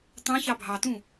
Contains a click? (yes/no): no